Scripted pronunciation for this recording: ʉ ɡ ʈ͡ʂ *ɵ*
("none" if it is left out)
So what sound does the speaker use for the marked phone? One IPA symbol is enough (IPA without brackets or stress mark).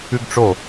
o